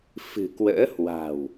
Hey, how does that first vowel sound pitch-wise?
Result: low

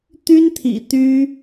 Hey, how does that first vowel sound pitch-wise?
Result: high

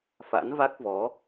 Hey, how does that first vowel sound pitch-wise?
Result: rising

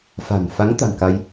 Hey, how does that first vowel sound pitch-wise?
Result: low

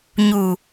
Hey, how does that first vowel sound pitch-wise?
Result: low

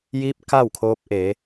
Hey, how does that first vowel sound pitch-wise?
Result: rising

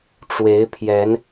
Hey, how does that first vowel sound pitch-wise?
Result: rising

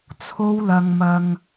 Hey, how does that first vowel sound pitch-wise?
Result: high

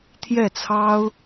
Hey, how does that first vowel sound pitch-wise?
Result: falling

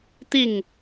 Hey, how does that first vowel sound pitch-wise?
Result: falling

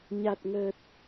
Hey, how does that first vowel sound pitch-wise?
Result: low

